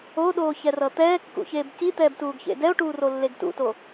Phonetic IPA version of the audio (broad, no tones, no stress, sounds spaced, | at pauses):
o ɗ oː ç ɛ r ʌ t̪ ɛː kː ṵ ç eː b c i t̪ ɛː b t uː ɡ ç ḛ d ɛ o̯ ʈ uː r o lː e ɡ t ṵ t o